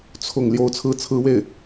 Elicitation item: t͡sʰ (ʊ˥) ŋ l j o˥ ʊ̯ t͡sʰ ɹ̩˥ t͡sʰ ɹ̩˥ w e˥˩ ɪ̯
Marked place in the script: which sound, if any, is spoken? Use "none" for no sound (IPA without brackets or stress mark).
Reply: ʊ˥˩